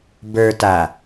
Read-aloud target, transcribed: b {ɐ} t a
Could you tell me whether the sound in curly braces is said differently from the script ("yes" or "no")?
yes